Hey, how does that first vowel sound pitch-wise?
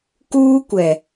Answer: high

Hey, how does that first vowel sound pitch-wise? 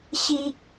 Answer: high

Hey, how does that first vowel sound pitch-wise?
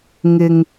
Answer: low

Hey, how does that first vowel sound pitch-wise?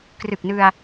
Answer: low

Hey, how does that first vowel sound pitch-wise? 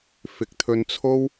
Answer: rising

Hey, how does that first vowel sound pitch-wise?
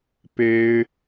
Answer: high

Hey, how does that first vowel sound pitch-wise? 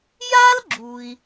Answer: high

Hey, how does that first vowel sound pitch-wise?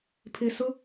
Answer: low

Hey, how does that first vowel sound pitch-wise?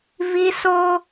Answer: high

